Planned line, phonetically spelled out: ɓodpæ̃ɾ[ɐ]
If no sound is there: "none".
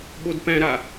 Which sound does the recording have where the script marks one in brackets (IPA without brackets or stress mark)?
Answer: a